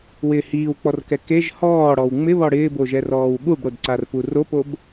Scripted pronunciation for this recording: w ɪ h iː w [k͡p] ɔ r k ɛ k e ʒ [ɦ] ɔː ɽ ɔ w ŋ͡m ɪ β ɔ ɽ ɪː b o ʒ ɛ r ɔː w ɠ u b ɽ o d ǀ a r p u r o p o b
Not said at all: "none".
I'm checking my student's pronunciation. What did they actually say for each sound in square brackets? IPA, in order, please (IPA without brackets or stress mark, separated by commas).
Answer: k͡p, h